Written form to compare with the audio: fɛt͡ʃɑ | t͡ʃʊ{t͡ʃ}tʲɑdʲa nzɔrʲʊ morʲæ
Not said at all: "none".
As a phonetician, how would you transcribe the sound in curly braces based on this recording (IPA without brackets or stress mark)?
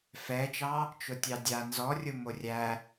none